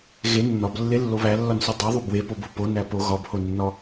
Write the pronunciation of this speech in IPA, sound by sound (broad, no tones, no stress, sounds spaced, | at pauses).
ɣ e nː ɒ b lː e lː o β æ lː ɒ n s o dˤ i ðˤ u b w e p o b o p o n æ p o ɣ ɒ b h o nː ɒ